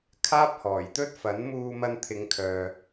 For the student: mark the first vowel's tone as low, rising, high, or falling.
high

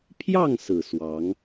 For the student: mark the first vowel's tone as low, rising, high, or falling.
falling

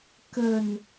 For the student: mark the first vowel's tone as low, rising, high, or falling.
low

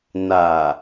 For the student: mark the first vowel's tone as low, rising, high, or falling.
low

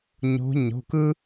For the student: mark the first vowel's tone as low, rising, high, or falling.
rising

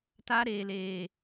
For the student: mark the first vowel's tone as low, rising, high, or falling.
high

